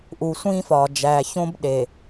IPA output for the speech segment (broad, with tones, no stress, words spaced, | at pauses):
ʔu˨sʷĩː˦fɒː˨ d͡ʒæː˨çõ˦b ɗe˨